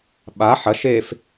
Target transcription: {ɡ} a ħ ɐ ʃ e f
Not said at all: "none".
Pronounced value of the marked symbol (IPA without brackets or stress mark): ɓ